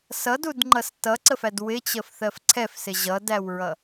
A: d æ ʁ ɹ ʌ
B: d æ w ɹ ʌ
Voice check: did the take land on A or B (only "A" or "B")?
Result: B